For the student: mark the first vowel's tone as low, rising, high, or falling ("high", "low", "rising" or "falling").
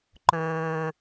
low